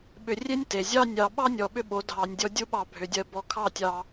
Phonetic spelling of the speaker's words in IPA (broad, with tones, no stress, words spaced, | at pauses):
ɓʏ˧rʲe˦nʲte˨ zʲɑ˧nʲɑ˨ ɓɑ˦nʲɔ˨ ɓʏ˦ɓo˨˦ dʱɑ˨nʲdʲɔ˧ dʲu˦ ɓɑ˧bʱʏ˨dʲɜ˧ bɔ˧kʰɑ˦˨tʲɑ˧